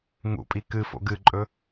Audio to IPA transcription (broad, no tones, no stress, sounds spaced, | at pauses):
ŋ ṵ pʼ i k ɨ f o̰ ɡ ɨ ǃʼ ɵ